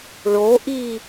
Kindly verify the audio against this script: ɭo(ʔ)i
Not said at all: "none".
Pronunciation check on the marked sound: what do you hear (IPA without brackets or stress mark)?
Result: ʔ